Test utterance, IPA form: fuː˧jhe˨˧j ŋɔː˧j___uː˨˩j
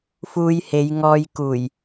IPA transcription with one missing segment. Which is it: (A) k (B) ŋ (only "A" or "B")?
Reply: A